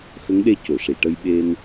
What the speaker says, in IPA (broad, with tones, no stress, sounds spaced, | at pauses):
x ə˧˥ ŋ ɗ e˧ c o˨˩˨ ʂ i˨˩˨ ʈ ə˧ j ɓ e˧ n